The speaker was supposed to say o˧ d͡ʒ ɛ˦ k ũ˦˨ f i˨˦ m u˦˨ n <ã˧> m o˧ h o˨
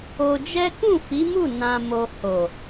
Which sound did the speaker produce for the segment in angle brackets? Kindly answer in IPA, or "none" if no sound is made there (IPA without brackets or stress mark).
ã˧